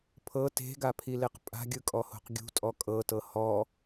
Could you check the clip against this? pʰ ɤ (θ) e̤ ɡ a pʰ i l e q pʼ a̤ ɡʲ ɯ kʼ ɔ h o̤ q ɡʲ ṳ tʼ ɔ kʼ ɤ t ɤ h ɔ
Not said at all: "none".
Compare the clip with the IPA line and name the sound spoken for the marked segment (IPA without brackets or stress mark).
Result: t